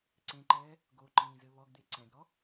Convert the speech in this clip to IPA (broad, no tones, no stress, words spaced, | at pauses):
ǀẽǃɛː | ɡoǃĩːzɘ βɔɡd̪e ǀɛ̃ɡɾɔ